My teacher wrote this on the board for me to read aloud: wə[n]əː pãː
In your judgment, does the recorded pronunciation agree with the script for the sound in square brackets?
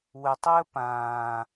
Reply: no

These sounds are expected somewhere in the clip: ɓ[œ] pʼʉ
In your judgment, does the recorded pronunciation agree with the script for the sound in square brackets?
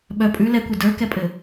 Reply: yes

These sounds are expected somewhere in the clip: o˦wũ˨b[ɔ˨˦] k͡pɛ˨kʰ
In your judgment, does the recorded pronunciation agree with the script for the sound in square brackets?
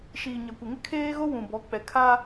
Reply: yes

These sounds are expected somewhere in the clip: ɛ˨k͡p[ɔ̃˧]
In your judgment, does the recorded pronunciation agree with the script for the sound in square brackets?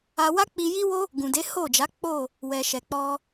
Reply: no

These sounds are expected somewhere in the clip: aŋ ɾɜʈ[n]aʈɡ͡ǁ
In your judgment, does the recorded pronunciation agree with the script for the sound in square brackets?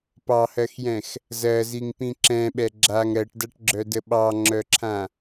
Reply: no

